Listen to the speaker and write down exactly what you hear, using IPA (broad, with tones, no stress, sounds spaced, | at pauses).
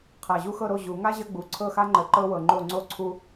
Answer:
qʰ a˨˩ ʑ u˥ x ɤ˥˨ ɾ o˥˨ ʑ u˨˩˦ ŋ a˥ ʑ ə˥ ɡ͡b u˨˩ ǀʰ ɤ˥˨ x a˥ ŋ͡ǃ ə˨˩˦ ǃ ɤ˥ w ɤ˨˩ ŋ͡ǃ o˥˨ ŋ͡ǀ o˥ ǀʰ u˥